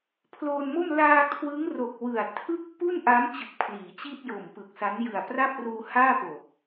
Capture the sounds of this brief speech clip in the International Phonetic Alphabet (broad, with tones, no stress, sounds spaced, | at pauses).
pʰ l oː˧ n m o˥˩ m l aː˧ kʰ w ɯ˦˥ ŋ r o˨˩ k̚ w ɯ˨˩ a̯ tʰ ɯ˥˩ k̚ p u˥˩ n ʔ a˦˥ m t͡ɕ ɯ˨˩ k̚ pʰ l iː˩˦ t͡ɕ i˥˩ t̚ j o˨˩ m p ɯ˨˩ k̚ s a˦˥ n j ɯ˨˩ a̯ p r a˥˩ p̚ r uː˧ h aː˥˩ p o˨˩ k̚